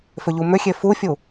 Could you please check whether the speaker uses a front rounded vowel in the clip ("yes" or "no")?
yes